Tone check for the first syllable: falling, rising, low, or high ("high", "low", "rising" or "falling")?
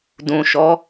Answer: low